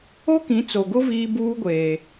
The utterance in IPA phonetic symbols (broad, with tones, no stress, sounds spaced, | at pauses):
o˦ k ĩ˨˦ t͡s o˨ ɡ ʊ˦ v iː˦ b uː˦ ɡʷ eː˨